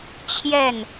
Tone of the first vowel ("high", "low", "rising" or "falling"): falling